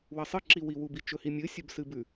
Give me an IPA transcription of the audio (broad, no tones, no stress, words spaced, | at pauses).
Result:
wɐsˤɨ ǁiwiwubi t͡ʃɵhimʲɨ sʲɵbsɨbʉ